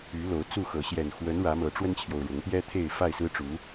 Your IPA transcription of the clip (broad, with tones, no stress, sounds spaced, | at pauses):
y˨˦ l o˨˦ ʊ̯ t͡s u˥˨ x ɤ˨˦ ɕ j ɛ˨˩ n x w ə˨˦ n ɻ ä˨˦ m ɤ˨˦ ʈ͡ʂ w ə˦ n t͡ɕʰ j o˨ ʊ̯ ɻ ʊ˨˦ ŋ t̪ j ɛ˦ t̪ʰ e˥˨ ɪ̯ f a˥˨ ɪ̯ s ɹ̩˦ ʈ͡ʂ u˨˦